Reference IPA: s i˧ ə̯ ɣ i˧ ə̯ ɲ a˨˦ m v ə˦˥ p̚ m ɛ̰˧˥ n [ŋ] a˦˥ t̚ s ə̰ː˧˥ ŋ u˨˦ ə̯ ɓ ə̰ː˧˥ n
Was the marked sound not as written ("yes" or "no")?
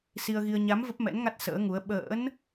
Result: no